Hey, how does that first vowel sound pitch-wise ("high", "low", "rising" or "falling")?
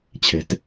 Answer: low